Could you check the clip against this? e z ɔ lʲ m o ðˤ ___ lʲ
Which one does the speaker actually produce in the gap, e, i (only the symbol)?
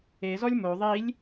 i